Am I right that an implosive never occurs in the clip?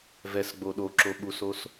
no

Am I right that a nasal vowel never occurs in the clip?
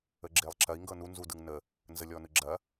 yes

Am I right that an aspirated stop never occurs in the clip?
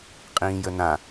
yes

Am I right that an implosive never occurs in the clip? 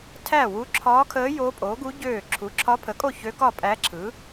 yes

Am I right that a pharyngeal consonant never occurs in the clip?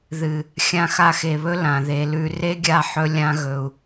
no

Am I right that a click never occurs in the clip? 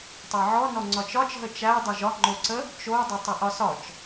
no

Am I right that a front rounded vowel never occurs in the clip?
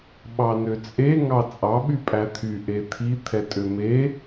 no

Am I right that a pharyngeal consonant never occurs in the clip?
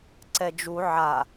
no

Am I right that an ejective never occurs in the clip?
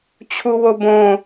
yes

